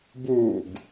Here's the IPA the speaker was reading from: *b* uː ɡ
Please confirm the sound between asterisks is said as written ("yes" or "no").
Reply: yes